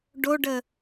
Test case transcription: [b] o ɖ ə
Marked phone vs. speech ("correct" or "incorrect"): incorrect